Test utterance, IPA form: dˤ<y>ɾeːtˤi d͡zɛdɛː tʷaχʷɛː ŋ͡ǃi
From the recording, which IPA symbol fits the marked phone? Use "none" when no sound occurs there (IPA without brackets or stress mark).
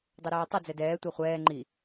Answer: e